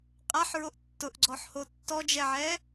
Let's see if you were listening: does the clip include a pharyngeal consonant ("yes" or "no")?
yes